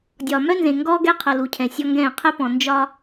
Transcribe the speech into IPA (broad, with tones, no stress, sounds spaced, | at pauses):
dʲ ɒ˨ m œ˦ n z ẽ˨ ŋ ɡ ɔː˦ ɡ ɛ˦ qʰ ʌ˨ l u˨ cʰ ɛ̃˨ sʲ ɔ˦ ŋ ɡ ɛ̃ː˦˨ qʰ ɛ˦ p ɔ̃˨ n d͡ʒ ɒ˦